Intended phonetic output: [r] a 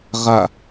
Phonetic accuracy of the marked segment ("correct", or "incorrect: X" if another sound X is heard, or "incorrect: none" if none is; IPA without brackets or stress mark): incorrect: ʁ